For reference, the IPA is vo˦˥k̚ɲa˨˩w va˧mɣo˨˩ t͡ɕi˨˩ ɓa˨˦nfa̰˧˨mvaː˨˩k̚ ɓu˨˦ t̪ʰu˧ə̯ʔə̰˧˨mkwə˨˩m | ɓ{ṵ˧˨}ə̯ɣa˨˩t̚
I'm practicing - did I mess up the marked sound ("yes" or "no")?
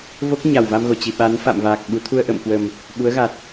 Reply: yes